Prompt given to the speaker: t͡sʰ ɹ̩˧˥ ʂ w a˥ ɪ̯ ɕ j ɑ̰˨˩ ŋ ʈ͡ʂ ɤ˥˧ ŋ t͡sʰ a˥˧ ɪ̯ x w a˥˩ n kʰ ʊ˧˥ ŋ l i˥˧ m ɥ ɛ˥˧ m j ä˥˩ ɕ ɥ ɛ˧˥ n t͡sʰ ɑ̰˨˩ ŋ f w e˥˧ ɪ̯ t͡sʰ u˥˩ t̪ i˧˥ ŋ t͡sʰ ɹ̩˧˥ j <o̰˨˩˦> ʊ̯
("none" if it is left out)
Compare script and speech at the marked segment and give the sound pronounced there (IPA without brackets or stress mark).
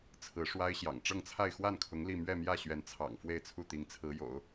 o̰˨˩˦